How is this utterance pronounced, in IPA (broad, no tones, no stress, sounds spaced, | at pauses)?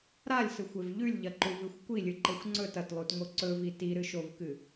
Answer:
ɾ a lʲ s ɨ xʷ e v ʎ ʉ lʲ ʎ ɐ ǃ u v ɨ xʷ kʷ i lʲ ɨ ǃ e xʷ ŋ͡ǀ ɵ t ɐ t lˠ u t ŋ o ǀ ɵ v i t i ɾ ɨ ʃ o v k ɨ